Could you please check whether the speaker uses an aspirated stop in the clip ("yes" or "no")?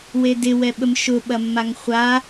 no